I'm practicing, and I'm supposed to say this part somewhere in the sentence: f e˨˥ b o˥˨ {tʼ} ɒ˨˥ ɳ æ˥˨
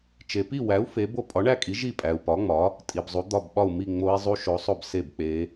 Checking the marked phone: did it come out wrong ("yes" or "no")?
yes